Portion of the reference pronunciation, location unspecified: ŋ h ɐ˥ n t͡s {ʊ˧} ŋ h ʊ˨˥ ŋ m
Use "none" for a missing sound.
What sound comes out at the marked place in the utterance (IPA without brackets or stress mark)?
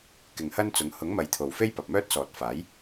ʊ˨˥